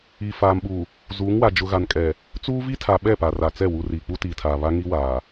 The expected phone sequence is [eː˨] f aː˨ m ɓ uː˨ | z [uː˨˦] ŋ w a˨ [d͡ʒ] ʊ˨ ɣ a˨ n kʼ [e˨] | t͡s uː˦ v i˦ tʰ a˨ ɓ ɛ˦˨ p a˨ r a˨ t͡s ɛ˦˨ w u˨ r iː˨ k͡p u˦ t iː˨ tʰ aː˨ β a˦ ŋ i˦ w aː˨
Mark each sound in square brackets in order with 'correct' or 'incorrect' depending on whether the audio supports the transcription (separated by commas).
incorrect, correct, correct, incorrect